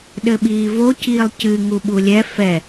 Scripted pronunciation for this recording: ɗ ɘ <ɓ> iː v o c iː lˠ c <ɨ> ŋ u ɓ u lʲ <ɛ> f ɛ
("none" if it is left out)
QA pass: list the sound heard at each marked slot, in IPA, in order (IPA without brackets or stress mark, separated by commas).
ɓ, ɨ, ɛ